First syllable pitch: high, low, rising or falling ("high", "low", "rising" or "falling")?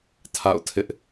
falling